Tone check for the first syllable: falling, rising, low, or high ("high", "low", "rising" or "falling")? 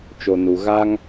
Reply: low